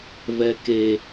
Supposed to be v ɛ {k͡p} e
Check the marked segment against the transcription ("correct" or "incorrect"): incorrect